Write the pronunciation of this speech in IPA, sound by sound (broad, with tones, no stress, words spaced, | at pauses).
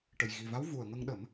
ʈə˨˩jɣi˨˩va˧˥w vu˨˩ə̯ŋə˧ŋɗə˨˩˦m